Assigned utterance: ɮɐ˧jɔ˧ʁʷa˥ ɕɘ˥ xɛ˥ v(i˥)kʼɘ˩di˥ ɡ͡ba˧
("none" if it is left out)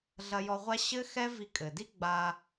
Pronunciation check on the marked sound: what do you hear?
i˧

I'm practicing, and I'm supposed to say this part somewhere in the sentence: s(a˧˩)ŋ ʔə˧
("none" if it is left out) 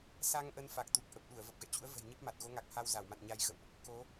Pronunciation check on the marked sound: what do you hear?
a˧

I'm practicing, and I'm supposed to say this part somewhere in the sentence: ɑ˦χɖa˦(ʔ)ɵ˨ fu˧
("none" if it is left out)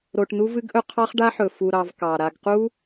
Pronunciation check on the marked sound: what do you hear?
ħ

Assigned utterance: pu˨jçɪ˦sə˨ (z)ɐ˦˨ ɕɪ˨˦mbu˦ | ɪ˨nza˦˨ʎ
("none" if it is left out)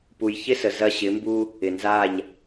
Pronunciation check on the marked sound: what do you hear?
z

